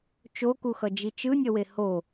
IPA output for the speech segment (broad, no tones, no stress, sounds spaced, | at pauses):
t͡ʃ o k u x ʌ d͡ʒ i t͡ʃ ɯ nʲ ʌ w e h o